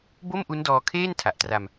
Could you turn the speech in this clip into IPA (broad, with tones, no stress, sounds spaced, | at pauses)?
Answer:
b o˥˩ m ʔ u˦˥ n d ɔː˧ kʰ eː˥˩ n tʰ a˨˩ ʔ t r a˧ m